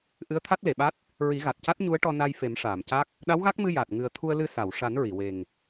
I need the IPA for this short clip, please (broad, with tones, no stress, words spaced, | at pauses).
ʔɨ˧˥ə̯t̪ʰa˦˥t̚le˨˩˨ɓa˦˥t̚ | ɹi˨˩˦ɣa˨˩t̚ca˦˥t̚ ɲu˧˥ə̯ʈɔ˧ na˧jfe˨˩˦mʂaː˨˩˨mca˦˥k̚ | ɗa˧˥wɣa˦˥k̚mɨ˧ jaː˨˩t̚ ŋɨ˨˩ə̯t̪ʰu˧ə̯lɨ˧ sa˨˩˨wʂa˨˩˦n ɹi˨˩˨we˨˩ŋ